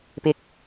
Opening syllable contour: low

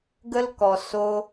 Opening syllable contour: high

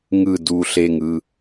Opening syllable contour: low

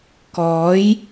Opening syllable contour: rising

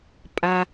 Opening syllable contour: low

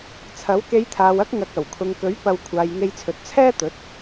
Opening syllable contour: rising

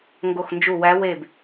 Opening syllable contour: falling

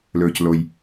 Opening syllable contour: low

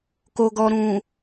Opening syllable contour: low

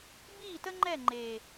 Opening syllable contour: falling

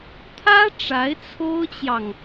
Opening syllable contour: high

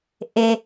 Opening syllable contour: low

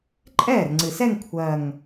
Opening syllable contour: falling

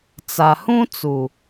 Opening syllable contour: low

